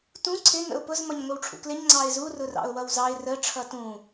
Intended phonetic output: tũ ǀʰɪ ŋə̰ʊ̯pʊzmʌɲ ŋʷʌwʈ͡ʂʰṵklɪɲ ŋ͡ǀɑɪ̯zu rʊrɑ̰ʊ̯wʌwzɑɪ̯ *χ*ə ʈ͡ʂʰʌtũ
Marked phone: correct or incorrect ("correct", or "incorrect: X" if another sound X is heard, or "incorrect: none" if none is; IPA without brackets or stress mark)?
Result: incorrect: r